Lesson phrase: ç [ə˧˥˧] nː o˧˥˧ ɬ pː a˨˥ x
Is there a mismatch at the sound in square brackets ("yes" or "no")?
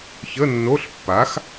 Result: no